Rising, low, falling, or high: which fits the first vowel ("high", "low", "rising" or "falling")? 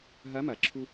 rising